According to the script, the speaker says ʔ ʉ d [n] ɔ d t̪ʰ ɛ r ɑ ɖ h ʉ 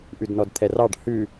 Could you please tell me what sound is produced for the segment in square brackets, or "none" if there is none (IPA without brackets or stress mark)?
n